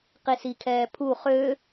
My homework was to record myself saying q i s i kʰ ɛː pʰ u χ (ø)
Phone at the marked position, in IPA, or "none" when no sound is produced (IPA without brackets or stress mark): ø